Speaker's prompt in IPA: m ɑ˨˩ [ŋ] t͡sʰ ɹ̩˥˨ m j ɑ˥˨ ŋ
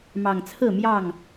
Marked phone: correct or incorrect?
correct